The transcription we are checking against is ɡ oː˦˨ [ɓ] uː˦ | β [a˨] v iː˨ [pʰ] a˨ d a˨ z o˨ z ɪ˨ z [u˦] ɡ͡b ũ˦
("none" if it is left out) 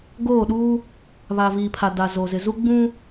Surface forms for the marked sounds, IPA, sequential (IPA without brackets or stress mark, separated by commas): ɗ, a˨, pʰ, u˦